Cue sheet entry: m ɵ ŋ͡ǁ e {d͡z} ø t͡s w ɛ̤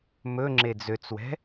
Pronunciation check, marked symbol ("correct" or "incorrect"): correct